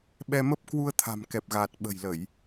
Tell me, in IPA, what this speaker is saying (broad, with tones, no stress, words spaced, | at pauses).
ɓɛ˧mə˦˥p̚ kwu˧ə̯t̪ʰa̤˨˩mkɛ˨˩p̚ ɣaː˨˩t̚ɓə̤˨˩jlə˧˩˨j